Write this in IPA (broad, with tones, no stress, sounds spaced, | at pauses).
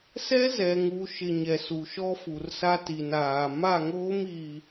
s ɛ˦ z ɛ˨ ŋ u˨ ʃ ɪ˨ ɲ ɛ˨ s u˨ ʃ ɔ˦ f u˨ r s a˦ t i˨ n aː˨ m a˦˨ ŋ oː˦ m i˨